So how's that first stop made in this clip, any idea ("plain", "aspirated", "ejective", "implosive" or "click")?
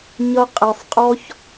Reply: ejective